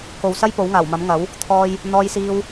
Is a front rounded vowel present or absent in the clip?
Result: absent